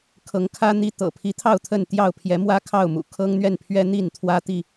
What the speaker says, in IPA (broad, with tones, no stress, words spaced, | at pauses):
kʰɤ˨˦ŋkʰä˦ n̪i˦ t̪ɤ̰˨˩pʰi˨˦t̪ʰɑ˥˨ʊ̯ t̪ʰə˥˨n t̪jɑ˥˨ʊ̯pʰjɛ˨˦ mwä˦ kʰɑ˥˨ʊ̯mṵ˨˩ kʰɤ˦ŋn̪ɥɛ˥˨npʰɥɛ˦ n̪i˥˨n t̪ʰwä˦t̪i˥˨